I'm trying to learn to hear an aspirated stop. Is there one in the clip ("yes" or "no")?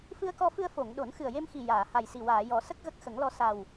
no